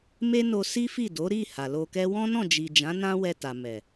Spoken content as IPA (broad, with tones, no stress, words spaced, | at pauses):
me˦no˧ si˦fi˦˨ do˨˦ ɾi˦˨ ha˨lo˧kɛ˦ wɔ̃˦nɔ̃˦˨d͡ʒi˨d͡ʒã˨˦ nã˦wɛ˧ ta˨ mɛ˨